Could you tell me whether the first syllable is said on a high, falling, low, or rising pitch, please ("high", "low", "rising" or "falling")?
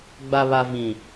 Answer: low